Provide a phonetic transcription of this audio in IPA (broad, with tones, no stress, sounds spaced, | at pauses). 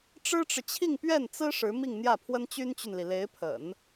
ʈ͡ʂ ɻ̩˥ ʈ͡ʂ ɻ̩˨ t͡ɕʰ i˥˧ ŋ p ɥ ɛ˥˩ n t͡s ɹ̩˥ ʂ ɻ̩˧˥ m i˥˧ ŋ n̪ j ä˥˩ pʰ w ə˥ n t͡ɕ y˥ n t͡ɕ y˨ n l i˩ l e˧˥ ɪ̯ pʰ ə̰˨˩˦ n